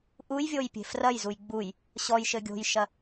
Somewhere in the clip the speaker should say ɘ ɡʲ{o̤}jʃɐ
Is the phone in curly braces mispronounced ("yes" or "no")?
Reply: no